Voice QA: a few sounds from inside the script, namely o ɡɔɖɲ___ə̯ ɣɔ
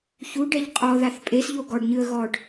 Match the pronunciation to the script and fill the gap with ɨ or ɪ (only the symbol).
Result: ɨ